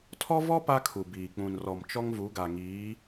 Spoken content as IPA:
tʰ ɔ˦ v ɔ˦ p a˦ kʰ u˨ b iː˨ k͡p ũ˨ n r ɔ˨ m t͡ʃ ɔ˦ ŋ v u˨˦ ɡ a˨ ŋ iː˨˦

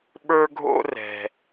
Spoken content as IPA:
ɓ ə˞˥ ɡʱ o̰˥ r ɛ̤˧

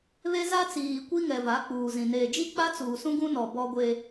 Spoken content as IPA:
β e˦ z a˦ t͡s iː˨ kʷ i˦ ŋ ɛ˨ v a˨˦ k͡p uː˨ z ĩ˨ n eː˨ d͡ʒ i˦ k͡p a˦ t͡s uː˨ s ũ˦ ɡ ũ˦ n ɔ˨ b ɔ˦ ɡʷ e˦

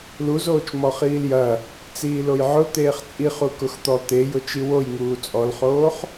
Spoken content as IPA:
l u z oː t͡ʃ m ɔ χ iː l j ɐ | t͡s iː l o j ʕ ʊ t̪ eː χ t͡sʼ i χ u k ʊ x t̪ ɔ t̪ e j ʊ t͡ʃ i w o j ŋ uː t͡sʼ ɔ l χ oː χ

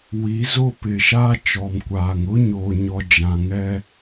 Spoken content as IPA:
w i˨˦ z o˦ p ɪ˨ ʃ aː˦ t͡ʃ ɔ˨ m kʷ aː˨ ŋ ʊ˦ ɲ oː˨ ɲ ɔ˨ d͡ʒ ã˨ ŋ ɛ˦

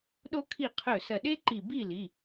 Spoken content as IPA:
ɗ o˥ kʰ i˥˨ qʰ ɵ˧˩ s ɐ˧˩ ɗ e˥ ǃ i˧˩ b i˥˨ l i˩˧˩

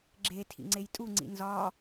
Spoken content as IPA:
ɡ͡ǁ e tʰ ḭ ŋ͡ǀ e j tʼ u ŋ͡ǀ ḭ n z ɒ

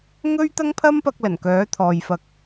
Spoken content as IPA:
ŋ ɵ˥ ɥ t̪ ɐ˥ ŋ pʰ ɐ˥ m p ɐ˧ k̚ l ɐ˨˩ n k œː˨˥ t̪ʰ ɔː˨ j f ɐ˧ k̚

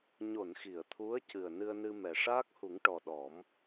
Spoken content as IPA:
ɲ o˨˩˨ n x i˨˩˨ ə̯ t̪ʰ u˧˥ ə̯ c ɨ˨˩ ə̯ n ɨ˧ ə̯ n ɨ˧ m ɛ˨˩ ʂ aː˦˥ k̚ h u˨˩˦ ŋ ʈ ɔ˨˩ ɗ ɔ˨˩˦ m

